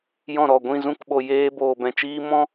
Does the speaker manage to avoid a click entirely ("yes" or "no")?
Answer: yes